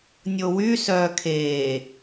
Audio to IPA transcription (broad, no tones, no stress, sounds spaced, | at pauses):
nʲ o w y s œː kʰ eː